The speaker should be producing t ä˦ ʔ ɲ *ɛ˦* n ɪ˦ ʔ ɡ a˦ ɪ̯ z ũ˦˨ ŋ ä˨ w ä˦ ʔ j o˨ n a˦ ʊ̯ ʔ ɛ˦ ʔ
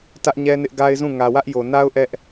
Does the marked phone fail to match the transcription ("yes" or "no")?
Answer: no